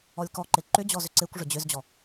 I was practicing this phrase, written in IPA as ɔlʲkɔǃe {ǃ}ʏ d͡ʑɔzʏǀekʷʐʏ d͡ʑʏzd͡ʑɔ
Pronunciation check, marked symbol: correct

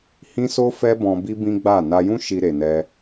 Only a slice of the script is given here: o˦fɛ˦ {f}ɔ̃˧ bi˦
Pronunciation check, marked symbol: incorrect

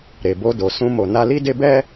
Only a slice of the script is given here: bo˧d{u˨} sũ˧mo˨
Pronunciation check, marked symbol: incorrect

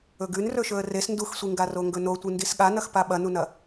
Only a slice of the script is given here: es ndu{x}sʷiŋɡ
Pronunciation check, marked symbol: correct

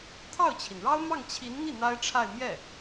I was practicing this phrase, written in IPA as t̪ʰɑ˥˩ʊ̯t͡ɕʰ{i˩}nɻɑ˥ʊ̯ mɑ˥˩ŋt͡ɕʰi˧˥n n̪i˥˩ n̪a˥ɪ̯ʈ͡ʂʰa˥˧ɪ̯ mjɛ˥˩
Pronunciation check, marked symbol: correct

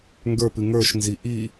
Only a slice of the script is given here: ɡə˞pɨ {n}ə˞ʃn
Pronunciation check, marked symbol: incorrect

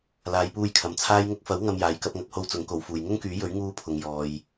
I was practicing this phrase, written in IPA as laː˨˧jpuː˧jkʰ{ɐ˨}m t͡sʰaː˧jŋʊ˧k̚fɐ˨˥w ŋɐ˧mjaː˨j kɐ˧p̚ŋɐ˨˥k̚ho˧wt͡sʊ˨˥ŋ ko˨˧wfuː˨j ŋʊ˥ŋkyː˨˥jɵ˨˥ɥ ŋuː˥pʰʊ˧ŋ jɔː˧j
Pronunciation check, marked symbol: correct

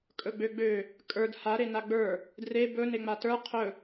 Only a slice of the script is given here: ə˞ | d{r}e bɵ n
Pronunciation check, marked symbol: correct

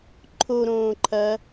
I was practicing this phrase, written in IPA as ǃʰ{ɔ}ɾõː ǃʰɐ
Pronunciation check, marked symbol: incorrect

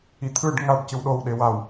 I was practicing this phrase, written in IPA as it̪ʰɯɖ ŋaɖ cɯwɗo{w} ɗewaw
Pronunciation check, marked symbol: correct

